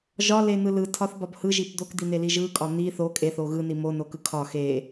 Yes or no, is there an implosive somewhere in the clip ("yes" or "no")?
no